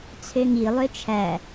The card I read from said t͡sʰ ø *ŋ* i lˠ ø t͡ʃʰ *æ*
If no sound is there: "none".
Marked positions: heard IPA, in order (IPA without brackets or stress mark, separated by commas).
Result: ŋ, æ